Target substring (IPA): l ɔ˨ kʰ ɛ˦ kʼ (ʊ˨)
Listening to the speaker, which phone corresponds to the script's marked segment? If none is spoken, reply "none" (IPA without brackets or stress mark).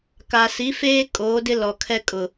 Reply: ʊ˨